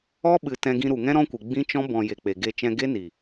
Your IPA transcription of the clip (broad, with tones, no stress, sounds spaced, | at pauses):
ɔ˦ ɓ ɨ˨ t ɛ̃˧ ɡ ĩ˧ ɾ u˨ ŋ ɛ̃˦ ɾ ɔ̃˦ kʷ ɨ˨ ɡ͡b ĩ˦ t͡ʃ ɔ̃˦ b ɔ̃˨ j e˨ k͡p e˨ ɡ e˧ t͡ʃ ɛ̃˧ ɡ e˦ n i˨